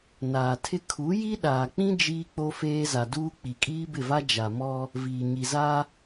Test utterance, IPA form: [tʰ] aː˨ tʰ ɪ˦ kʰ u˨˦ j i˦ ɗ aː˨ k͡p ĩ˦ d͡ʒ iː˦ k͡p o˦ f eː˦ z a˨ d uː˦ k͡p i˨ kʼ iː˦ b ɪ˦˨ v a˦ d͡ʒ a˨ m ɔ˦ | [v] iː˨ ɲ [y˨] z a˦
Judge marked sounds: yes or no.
no, yes, no

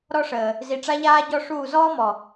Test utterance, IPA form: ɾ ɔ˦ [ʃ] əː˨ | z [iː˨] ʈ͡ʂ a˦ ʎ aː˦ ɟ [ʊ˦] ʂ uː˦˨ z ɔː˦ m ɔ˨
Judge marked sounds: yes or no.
no, no, no

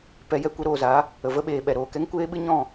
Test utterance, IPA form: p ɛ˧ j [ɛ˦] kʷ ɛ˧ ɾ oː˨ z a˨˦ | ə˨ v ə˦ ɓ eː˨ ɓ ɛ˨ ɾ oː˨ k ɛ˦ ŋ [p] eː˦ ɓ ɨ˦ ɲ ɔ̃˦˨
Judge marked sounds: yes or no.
yes, no

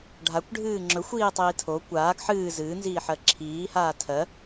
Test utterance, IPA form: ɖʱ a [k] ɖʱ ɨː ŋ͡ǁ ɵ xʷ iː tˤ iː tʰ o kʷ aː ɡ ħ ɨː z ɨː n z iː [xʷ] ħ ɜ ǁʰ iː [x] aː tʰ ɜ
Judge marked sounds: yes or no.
no, no, no

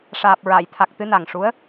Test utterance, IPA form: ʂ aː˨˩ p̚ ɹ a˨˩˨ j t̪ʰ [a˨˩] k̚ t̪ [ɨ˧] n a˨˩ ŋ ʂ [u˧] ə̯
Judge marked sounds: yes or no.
yes, yes, no

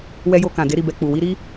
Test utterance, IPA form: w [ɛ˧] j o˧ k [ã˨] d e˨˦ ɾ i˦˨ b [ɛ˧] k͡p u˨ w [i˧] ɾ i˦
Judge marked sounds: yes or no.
yes, yes, yes, yes

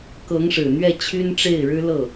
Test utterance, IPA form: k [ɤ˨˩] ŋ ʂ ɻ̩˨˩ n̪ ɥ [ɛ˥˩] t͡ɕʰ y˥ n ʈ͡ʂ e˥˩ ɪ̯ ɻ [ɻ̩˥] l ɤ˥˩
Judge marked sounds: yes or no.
no, yes, yes

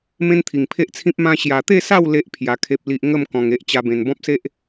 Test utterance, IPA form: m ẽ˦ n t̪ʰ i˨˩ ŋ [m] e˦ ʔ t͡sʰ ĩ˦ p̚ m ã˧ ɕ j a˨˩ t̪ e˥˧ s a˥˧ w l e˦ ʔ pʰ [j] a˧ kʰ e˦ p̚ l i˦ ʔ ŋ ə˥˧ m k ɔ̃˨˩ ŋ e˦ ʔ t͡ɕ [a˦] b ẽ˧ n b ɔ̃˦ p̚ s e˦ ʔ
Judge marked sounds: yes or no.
no, yes, yes

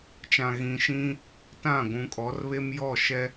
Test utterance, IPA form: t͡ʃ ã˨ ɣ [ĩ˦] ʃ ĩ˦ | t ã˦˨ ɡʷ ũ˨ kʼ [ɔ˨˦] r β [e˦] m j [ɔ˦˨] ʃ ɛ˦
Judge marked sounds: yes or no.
no, yes, yes, yes

